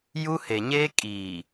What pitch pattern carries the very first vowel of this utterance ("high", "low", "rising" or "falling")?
high